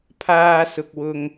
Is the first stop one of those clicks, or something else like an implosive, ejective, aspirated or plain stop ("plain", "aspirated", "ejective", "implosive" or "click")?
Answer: aspirated